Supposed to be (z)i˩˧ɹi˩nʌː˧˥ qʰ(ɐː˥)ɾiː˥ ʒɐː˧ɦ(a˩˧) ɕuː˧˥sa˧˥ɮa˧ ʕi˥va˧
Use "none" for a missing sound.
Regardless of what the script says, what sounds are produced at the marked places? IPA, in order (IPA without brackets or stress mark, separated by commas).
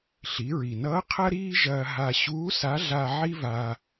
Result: ɬ, ɐ˥, a˧